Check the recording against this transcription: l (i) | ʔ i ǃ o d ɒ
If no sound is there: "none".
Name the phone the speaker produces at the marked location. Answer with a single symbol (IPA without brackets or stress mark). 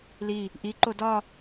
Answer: i